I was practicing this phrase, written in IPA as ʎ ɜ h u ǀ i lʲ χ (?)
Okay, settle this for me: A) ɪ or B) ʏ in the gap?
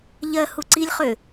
B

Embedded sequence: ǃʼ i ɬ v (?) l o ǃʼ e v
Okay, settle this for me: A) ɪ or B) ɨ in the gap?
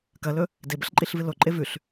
B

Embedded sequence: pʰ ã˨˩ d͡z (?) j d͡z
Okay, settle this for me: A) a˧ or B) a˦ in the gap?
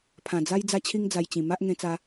B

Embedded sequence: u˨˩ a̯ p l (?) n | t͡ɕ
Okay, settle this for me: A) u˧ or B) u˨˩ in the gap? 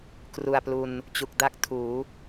A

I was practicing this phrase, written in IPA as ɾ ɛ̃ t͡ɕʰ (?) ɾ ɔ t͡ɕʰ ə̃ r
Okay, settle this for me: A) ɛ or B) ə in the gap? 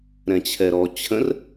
A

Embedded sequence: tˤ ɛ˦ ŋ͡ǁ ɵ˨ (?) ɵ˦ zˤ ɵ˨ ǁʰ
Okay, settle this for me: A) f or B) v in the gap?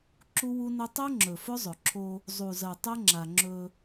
A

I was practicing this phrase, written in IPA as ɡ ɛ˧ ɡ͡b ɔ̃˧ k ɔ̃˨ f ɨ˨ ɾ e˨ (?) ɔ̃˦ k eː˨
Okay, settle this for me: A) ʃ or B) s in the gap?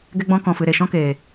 A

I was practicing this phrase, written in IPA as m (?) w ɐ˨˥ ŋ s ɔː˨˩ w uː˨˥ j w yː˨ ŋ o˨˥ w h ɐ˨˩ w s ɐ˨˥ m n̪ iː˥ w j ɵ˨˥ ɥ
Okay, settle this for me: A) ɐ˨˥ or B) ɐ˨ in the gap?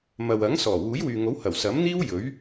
B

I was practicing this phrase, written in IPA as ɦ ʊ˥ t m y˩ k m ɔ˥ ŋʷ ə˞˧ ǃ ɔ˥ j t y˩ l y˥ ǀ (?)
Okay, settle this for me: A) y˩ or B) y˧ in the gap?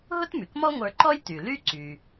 A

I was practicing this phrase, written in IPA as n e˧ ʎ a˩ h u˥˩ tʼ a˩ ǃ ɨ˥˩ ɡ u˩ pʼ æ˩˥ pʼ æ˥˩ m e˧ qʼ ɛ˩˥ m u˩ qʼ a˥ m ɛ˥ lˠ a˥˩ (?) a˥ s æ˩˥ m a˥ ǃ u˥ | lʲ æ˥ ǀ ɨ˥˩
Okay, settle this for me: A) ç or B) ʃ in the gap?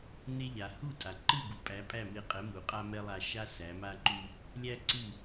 B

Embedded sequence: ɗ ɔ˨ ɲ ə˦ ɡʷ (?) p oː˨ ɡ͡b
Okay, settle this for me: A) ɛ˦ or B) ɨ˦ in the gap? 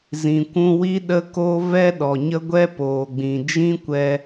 A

